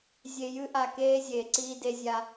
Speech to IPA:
zʲe˨jɨ˦ʔa˨keː˦ zʲeː˨ǀiː˦de˦zʲa˦

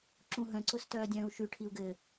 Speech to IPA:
ǁũɦœ̃ǀʊs tœːdʲœ̃ːu̯ʃyʈʰiu̯ ɡɘ

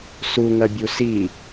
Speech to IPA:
suŋɐbʲu si

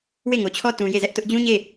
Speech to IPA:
we˦˨ŋo˨t͡ɕʰɔ˦ tũ˨ je˦˨zɛ˦ʔtʊ˦ʔ d͡ʑũ˦ɲe˦˨

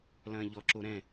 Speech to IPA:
lɐ̃ːʎɔǁo ɾɛ̃

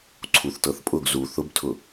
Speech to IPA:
ǀʰuθtɤθpʼʊɡ zu θʊbtʰʊ

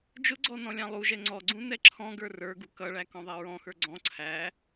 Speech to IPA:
d͡ʒʊɡ͡ǀɔ nɔ̃lʲɑ̃lˠuʒɛ ŋ͡ǀɔɡ͡ǀũ nɛǁʰɔ̃ɡə˞ rə˞ɡu kʌɭæ kɔ̃ðˤɛɹɔ̃xə˞ ɡ͡ǀɔ̃ ǀʰæ

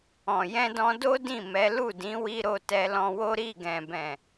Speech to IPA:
ɔ̃˨ jɛ̃˧dɔ̃˧do˦ dĩ˦˨mɛ˨˦ lu˦˨dĩ˨˦wi˧ɾo˧ tɛ˧lɔ̃˧wo˦ ɾi˦˨ɡɛ̃˨bɛ̃˨

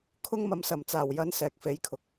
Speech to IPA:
kʰʊ˧ŋmɐ˨msɐ˨˩m t͡saː˨˩wjɐ˨˥n sɛː˨k̚fe˨˥jkʰʊ˨k̚

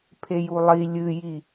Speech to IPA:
pʰejulˠi lʲɨji

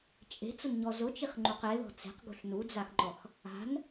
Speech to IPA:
t͡ʃʼe̤t͡sʊnɲɔ zʊt͡ʃiχŋ͡ǃuq eðɔ̤ t͡se̤qɡṳɬ nud͡zaxŋ͡ǃɔx | a̤n

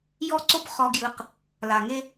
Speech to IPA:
jɔ˦ǀo˦p χɔ˦ɡjɯ˦q | la˨ŋe˦

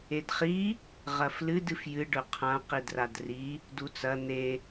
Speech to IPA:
edχi | ʁɐflɨd ɨfjɨ ɖɵqʰã qidradri | dut͡sɐ n̪e

